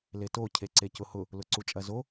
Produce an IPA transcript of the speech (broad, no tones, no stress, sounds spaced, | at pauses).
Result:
l e t o cʰ e ǀ e c ʊ h ʊ | l ʊ ǀ u t͡ʃʼ ɐ z o